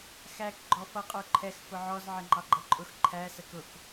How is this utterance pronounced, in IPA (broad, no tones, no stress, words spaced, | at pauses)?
xæk ɡ͡ǃɔfʌ qʼə˞ǃʰɛx fʊʕɔz ʕɪŋ͡ǃɑɡ͡ǃʌǃʼʊx ǃʰæ səkʊk